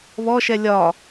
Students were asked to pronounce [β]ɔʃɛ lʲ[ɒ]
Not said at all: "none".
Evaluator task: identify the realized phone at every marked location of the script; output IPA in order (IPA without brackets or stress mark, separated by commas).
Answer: β, ɒ